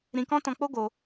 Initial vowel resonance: nasal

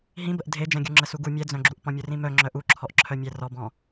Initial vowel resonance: nasal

